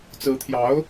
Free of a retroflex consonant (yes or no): yes